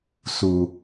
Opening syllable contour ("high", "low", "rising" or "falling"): low